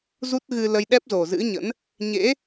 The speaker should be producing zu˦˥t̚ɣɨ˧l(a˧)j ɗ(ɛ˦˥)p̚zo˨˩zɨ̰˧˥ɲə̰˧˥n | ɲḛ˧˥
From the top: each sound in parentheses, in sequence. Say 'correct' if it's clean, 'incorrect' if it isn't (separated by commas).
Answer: incorrect, correct